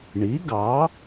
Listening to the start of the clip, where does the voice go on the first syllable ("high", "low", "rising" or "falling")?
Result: rising